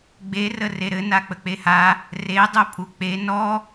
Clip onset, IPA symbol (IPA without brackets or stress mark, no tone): ɡ͡b